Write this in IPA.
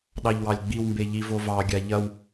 ɗ ɑ ʎ w ɑ lʲ ɡ͡b i w m b e ʎ i v o v ɑ ɡʲ a ʎ ɐ w

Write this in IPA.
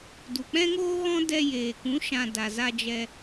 d u˨ k͡p ɛ̃˦ ŋ oː˦ ɣ ɔ̃˦ d ɛ˧ j eː˨ k ũ˨˦ ʃ ã˨ d a˨ z a˧ d͡ʒ ɛ˧

